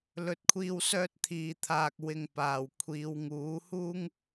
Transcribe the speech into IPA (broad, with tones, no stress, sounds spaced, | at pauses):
l ɵ˨˥ t̚ kʷʰ iː˧ w s œː˧ t̚ t̪ʰ iː˨ t̪ʰ aː˨ k̚ w ɪ˨ ŋ p aː˨ w kʷʰ iː˨˧ w ŋ uː˨˥ h uː˥ ŋ